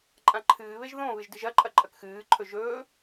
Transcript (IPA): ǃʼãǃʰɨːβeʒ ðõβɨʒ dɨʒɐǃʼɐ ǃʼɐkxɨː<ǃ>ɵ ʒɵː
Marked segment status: incorrect: ǃʰ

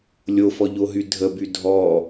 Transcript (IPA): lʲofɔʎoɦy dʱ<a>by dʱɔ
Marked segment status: incorrect: ə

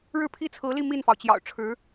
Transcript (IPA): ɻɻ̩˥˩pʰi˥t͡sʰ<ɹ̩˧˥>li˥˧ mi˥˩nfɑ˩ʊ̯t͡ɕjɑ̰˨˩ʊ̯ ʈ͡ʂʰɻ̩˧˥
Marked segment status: correct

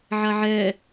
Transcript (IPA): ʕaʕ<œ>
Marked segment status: incorrect: ɛ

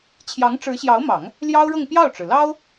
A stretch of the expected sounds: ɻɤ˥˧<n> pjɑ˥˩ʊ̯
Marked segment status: incorrect: ŋ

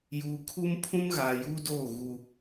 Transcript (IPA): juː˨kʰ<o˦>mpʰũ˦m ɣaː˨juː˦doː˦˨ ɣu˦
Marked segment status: incorrect: u˦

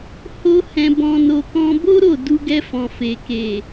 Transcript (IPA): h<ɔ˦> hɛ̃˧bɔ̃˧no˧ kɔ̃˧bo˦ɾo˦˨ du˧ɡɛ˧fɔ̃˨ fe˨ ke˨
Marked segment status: incorrect: o˦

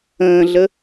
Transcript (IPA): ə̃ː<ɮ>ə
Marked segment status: correct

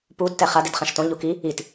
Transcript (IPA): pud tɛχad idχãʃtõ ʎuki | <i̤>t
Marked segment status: incorrect: i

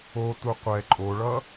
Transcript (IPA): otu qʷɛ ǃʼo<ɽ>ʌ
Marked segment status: incorrect: ɭ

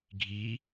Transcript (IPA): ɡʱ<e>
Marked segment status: incorrect: i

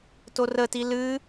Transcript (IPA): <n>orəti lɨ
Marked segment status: incorrect: t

